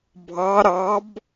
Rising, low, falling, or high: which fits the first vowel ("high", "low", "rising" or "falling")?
rising